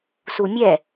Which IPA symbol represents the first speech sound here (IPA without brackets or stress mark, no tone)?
s